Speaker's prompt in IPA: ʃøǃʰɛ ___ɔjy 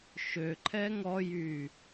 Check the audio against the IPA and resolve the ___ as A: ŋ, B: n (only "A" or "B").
A